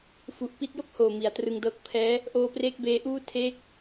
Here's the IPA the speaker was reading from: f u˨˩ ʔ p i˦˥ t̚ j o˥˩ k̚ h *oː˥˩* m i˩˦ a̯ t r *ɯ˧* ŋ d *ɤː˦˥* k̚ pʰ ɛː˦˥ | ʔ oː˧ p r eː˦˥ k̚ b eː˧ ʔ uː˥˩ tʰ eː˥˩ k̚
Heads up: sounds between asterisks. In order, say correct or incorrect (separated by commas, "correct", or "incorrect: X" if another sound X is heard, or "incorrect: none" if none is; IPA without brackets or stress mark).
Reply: incorrect: oː˨˩, correct, correct